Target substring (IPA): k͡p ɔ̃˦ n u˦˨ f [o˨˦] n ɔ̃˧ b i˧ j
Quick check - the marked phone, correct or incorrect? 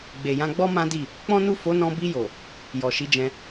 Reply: correct